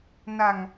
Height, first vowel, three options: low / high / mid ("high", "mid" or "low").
low